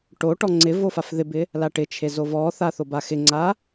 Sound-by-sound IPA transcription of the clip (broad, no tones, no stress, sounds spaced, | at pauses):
ʈ o ʈ ɔ ŋ͡ǀ ɪ v o f a f ð ɪ b ɪ | l a ʈ ɪ t͡ʃʰ e z o v ɔ θ a θ o b a x ɪ ŋ͡ǀ a